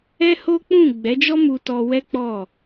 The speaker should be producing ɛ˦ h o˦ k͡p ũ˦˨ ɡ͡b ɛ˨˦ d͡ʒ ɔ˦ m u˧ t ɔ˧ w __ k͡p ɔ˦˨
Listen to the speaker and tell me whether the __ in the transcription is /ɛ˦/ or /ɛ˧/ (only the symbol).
ɛ˦